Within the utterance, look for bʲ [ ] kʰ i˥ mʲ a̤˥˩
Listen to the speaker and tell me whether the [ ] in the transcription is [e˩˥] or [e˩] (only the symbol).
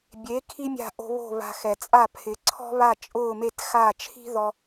e˩˥